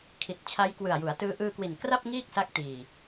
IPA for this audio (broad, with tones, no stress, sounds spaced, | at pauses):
kʰ i˨˩ t̚ t͡ɕʰ a˦˥ j k w ɯ˨˩ a̯ j u˩˦ a̯ t ɯː˦˥ ʔ ɯː˧ k w i˨˩ n k r a˥˩ p̚ ŋ iː˥˩ k̚ s a˦˥ k̚ t iː˨˩